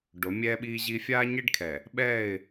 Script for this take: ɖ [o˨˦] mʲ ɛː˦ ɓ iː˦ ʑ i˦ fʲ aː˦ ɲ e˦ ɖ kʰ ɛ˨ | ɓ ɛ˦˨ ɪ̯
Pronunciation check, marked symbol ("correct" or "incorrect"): correct